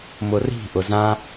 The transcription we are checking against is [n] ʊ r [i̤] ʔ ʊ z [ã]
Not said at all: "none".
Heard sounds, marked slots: m, i̤, ã

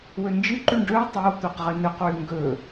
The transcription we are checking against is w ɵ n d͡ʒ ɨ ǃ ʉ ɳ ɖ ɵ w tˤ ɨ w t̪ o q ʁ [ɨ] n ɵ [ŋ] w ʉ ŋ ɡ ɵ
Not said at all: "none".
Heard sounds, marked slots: ɨ, q

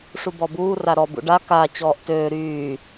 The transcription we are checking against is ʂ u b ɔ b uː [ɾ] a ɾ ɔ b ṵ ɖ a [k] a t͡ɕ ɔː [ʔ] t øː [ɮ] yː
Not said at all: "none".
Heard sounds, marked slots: r, k, ʔ, ɾ

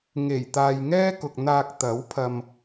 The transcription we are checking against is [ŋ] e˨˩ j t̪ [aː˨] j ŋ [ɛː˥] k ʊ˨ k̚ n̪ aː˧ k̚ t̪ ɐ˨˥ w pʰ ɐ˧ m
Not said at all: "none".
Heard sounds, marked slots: ŋ, aː˨, ɛː˥

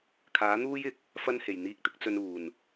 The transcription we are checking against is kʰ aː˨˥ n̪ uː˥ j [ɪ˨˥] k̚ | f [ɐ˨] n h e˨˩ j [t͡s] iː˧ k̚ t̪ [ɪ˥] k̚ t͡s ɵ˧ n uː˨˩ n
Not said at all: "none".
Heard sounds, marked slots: ɪ˨˥, ɐ˥, n̪, ɪ˥

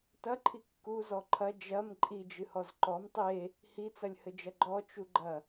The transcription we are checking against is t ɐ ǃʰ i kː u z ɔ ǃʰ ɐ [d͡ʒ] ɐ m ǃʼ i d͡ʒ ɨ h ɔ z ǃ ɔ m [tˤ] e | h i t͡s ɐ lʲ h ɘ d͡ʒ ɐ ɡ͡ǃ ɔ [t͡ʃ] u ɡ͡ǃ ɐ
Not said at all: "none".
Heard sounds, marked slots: d͡ʒ, tˤ, t͡ʃ

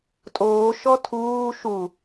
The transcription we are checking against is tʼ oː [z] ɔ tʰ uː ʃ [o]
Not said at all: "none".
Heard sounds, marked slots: ʃ, u

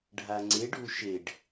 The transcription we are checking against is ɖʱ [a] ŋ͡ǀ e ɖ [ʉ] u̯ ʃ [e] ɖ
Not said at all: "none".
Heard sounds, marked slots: a, ʉ, e

